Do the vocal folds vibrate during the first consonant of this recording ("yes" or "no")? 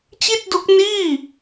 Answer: no